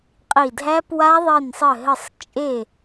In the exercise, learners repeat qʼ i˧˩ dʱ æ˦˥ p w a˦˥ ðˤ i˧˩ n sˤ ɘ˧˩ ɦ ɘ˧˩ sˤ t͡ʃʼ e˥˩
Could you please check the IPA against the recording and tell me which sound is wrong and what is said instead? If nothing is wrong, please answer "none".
none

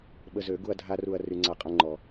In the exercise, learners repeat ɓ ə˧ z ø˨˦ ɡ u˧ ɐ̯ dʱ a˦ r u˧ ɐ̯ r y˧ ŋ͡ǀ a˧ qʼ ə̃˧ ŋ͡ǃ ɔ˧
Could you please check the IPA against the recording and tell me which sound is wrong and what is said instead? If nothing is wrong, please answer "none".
none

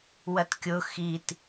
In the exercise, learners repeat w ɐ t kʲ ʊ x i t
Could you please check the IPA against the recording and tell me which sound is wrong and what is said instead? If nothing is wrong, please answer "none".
none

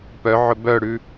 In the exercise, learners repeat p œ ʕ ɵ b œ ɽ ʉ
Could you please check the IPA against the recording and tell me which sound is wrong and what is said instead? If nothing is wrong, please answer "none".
none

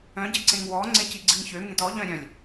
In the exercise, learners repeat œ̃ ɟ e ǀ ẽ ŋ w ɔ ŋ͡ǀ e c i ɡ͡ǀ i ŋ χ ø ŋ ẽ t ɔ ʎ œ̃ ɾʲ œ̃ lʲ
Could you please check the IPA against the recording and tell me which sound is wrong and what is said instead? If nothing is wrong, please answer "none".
χ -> ç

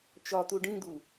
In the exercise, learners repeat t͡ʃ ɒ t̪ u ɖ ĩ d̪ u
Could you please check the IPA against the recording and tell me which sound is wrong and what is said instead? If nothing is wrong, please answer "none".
none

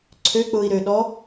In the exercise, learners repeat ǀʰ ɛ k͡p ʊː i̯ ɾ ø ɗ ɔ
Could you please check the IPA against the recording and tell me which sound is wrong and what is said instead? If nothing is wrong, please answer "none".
ɛ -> ø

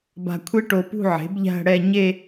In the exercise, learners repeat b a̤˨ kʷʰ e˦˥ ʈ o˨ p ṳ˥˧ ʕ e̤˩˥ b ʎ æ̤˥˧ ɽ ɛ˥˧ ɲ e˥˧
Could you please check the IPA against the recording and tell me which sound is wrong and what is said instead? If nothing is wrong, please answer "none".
none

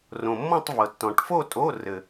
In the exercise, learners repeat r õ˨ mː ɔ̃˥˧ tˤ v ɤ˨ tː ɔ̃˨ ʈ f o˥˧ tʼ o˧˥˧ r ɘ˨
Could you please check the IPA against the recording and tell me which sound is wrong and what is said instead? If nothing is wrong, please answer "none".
none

